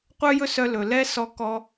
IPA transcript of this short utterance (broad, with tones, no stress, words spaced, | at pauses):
qʷœ˥jɵ˥sœ˧ lɵ˩lɛ˥ sɔ˧kɔ˧